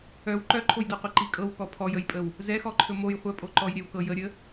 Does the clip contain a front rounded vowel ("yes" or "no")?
yes